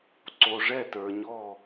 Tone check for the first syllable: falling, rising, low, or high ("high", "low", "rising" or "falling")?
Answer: low